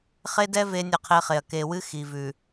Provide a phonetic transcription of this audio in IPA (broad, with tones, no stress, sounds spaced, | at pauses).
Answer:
χ e˦ d ɛ˦ v e˦ nʲ ə˦˨ qʰ e˦ χ e˨ ɐ̯ k e˨ w ɨ˦ x i˨ v ʉ˨